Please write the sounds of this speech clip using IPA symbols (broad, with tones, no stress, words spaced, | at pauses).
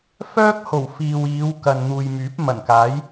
fœː˥k̚ ho˨˩w fiː˨wiː˨˧wkɐ˨n n̪uː˨jmyː˨˥p̚mɐ˨˩nkaː˨˥j